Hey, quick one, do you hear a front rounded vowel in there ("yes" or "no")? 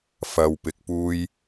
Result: no